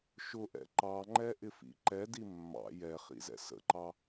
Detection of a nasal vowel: absent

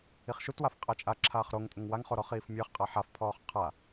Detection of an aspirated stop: present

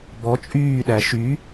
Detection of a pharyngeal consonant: absent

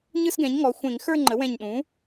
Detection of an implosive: present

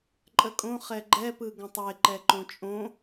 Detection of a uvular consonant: present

